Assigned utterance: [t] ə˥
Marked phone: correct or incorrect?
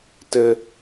correct